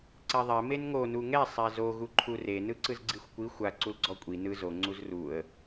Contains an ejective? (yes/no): yes